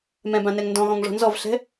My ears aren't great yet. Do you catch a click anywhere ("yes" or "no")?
no